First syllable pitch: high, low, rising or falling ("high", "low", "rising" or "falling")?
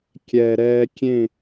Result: low